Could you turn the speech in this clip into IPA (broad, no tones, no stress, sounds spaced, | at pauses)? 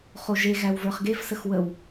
χ o ʒ e ɣ æ w v ə˞ χ ɡ e v s ə x w ə w